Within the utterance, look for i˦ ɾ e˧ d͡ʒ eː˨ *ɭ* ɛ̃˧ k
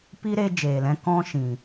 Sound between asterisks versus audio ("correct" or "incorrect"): incorrect